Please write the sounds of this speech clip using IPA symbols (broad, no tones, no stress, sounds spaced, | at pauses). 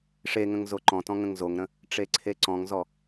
ʂ e ŋ ə̃ ŋ z o ǃ ɔ̃ t ɔ̃ ŋ ə̃ ŋ z o ŋ ɾ ə̃ | ʈ͡ʂ e ǀʰ e ǀ ɔ̃ ŋ z ɔ